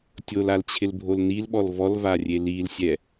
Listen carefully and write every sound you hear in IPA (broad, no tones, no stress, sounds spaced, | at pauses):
tʲ o l a l t͡ɕʰ ɪ l bʱ o l n i l ɓ ɔ l v ɔ l v a rʲ e l i l sʲ ɛ